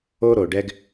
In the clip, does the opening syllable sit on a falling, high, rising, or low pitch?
high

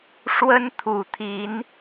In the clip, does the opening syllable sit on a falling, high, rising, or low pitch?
high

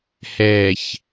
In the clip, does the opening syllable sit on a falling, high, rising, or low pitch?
low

